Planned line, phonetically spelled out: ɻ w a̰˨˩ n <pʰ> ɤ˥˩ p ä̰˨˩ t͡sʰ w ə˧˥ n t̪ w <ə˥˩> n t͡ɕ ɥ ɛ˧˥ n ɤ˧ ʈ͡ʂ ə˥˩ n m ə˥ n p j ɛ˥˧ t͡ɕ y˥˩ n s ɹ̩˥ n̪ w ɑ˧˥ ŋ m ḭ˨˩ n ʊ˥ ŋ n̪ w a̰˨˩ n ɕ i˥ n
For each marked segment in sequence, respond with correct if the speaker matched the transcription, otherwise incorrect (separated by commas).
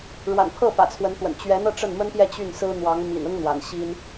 correct, incorrect